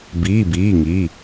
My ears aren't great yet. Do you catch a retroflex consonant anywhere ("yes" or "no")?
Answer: no